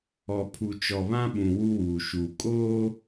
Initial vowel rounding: rounded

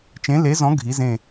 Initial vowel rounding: unrounded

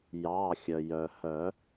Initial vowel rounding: unrounded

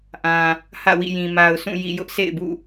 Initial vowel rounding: unrounded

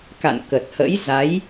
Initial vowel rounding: unrounded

